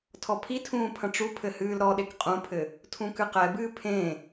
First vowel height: mid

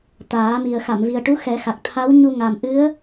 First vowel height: low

